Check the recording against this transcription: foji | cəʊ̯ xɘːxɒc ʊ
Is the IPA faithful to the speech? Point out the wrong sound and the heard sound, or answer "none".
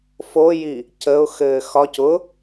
none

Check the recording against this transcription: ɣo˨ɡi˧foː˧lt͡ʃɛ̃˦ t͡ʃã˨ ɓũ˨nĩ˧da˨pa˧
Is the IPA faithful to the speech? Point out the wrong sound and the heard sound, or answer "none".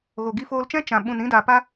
none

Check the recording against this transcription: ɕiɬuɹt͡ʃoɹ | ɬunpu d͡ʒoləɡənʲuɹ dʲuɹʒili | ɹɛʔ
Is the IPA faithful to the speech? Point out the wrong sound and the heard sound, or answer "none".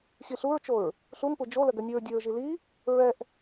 none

